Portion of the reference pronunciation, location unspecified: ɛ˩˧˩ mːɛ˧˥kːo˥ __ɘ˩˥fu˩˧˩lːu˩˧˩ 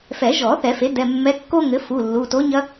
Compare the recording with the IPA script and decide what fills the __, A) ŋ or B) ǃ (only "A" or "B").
A